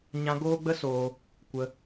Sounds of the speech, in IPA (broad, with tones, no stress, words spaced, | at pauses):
ɲã˦ ɡoː˦ɡ͡bə˦soː˧ | kʷə˧